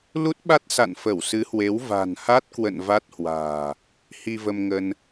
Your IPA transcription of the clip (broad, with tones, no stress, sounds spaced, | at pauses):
l u˦˥ t̚ ɓ a˦˥ t̚ s a̰˧˨ n f ə˧˩ w s ɨ˨˦ h w e˨˦ w v a̤˨˩ n h a˦˥ t̚ k w ə̰˧˨ n v a˦˥ t̚ h w a̤ː˨˩ | h i˧ v ə˧ m ŋ ə˧ n